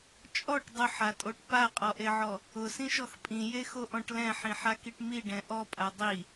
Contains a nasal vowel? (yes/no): yes